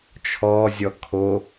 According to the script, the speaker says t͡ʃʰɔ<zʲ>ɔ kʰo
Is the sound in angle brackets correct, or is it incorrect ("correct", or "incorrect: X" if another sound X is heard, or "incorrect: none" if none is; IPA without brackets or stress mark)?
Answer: correct